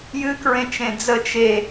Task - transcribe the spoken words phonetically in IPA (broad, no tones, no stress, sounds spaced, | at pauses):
j ɨ k ɹ ẽ t͡ʃ ẽ d͡z ə t͡ʃ e